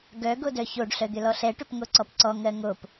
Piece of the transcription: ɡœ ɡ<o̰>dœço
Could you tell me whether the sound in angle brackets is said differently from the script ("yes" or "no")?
yes